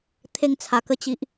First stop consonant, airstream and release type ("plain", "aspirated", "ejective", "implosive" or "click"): aspirated